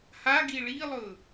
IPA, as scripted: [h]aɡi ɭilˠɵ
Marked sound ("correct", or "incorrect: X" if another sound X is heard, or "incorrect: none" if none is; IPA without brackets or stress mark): correct